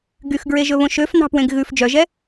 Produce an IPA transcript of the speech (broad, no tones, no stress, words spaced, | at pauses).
ɡyxɡɹeʒɵβõ ʃøfnɑ̤pwẽɡ ɣʉf d͡ʒœʒɛ